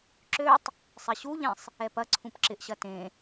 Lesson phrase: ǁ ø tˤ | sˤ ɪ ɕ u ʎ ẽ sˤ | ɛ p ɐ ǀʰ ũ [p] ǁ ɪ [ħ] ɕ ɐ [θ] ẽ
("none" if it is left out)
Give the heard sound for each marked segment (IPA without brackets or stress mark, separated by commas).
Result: p, ʔ, t